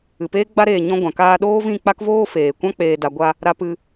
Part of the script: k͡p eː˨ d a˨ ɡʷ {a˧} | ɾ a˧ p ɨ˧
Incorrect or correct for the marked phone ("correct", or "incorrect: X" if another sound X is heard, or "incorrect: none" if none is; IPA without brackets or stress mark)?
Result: correct